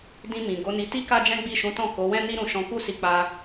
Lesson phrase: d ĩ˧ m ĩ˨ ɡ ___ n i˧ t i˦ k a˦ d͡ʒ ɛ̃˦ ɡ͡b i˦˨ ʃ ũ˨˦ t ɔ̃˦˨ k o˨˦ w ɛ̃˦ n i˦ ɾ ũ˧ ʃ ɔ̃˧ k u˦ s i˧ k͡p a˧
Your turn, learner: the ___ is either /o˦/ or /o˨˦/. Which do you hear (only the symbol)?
o˨˦